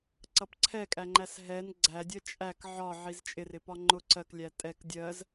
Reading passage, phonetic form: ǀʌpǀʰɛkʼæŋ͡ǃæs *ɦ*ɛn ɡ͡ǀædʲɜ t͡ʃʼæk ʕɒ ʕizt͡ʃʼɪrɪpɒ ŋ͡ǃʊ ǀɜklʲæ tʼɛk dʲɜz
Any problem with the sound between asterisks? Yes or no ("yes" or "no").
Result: no